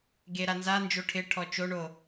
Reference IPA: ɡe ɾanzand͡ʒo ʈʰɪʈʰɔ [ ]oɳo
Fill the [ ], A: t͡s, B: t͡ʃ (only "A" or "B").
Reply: B